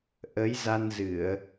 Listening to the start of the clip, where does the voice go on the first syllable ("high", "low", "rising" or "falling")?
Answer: rising